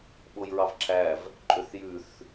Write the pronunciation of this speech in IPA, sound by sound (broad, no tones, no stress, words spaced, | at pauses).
ɓojɹɑvǁʰæv | ǃʼøθjʉθ